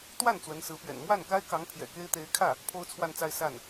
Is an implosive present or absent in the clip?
absent